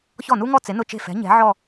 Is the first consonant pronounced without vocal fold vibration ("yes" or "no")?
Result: yes